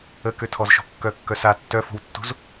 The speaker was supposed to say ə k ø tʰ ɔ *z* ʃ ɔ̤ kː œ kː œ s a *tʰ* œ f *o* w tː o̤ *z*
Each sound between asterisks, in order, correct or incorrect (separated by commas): correct, incorrect, incorrect, correct